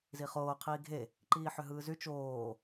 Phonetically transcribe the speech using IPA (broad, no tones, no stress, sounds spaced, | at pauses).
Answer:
z i χ oː qʰ iː ɡʱ e | ǃ iː ħ ø ɦ ɯː z y t͡ʃ oː